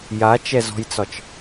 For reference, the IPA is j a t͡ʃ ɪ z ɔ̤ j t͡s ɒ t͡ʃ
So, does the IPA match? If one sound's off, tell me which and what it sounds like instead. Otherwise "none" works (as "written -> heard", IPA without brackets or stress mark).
ɪ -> ɛ